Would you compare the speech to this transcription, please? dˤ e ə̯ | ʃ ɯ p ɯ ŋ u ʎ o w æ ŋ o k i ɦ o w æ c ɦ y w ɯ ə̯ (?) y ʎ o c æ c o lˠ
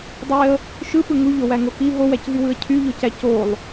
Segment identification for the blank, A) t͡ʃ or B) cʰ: B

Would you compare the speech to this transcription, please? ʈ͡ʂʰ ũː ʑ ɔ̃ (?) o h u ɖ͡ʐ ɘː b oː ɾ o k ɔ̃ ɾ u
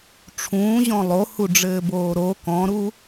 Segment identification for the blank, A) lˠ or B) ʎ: A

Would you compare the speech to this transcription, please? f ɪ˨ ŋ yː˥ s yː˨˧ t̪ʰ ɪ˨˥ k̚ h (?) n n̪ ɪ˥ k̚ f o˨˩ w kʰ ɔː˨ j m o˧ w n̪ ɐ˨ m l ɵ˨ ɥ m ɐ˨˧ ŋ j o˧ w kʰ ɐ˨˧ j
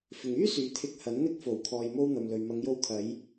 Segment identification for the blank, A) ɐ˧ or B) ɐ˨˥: B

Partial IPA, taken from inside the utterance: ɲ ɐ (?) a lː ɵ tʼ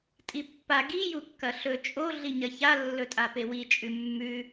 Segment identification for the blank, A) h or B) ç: B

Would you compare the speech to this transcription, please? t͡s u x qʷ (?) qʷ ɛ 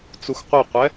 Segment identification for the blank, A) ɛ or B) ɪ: B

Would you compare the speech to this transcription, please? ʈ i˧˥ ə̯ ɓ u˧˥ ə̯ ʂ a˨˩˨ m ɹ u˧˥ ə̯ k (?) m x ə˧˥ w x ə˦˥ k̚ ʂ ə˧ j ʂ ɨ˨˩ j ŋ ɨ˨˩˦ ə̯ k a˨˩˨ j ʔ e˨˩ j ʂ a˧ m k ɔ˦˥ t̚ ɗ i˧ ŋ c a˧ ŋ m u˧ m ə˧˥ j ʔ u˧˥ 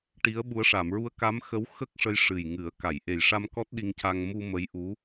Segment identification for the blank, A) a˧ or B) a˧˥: B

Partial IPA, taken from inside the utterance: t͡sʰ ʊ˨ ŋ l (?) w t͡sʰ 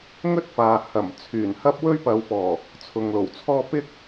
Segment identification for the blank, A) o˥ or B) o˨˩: B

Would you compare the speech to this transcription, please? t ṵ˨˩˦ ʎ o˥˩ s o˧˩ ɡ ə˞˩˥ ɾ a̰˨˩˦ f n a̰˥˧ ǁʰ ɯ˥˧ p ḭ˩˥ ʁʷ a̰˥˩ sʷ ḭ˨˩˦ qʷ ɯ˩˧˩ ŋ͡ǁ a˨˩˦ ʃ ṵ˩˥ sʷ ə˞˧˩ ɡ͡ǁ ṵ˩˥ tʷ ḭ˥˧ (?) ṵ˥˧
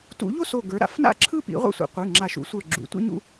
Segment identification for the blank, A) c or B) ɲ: B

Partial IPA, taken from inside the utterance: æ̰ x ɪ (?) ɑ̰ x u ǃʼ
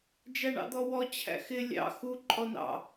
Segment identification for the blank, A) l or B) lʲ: B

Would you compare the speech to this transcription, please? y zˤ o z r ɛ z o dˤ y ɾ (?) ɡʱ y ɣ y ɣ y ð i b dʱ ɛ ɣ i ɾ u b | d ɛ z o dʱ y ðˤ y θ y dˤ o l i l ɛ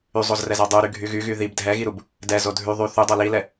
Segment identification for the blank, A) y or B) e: A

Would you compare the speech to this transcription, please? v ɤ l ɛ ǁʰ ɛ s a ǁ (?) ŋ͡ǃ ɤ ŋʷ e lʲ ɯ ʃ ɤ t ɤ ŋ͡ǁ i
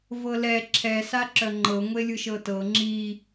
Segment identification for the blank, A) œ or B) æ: A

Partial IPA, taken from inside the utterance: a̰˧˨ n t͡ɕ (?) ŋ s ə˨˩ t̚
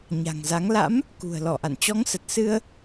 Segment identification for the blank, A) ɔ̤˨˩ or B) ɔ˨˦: B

